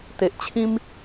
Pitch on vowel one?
low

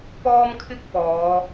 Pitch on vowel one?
high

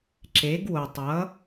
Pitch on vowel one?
rising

